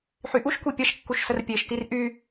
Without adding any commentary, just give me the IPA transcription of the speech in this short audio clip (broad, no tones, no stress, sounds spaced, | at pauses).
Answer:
ħ y ʔ u ʃ kʷ i pʲ ɐ ʃ kː u ʃ s ə r pʲ e ʃ t i r ʔ y